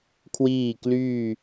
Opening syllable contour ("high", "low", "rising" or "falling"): falling